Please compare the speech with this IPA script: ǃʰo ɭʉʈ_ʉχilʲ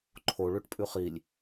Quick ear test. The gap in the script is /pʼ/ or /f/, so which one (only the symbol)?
pʼ